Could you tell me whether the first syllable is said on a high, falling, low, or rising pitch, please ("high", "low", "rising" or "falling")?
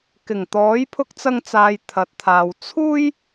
low